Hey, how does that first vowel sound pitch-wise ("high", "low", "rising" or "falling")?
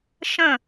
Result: falling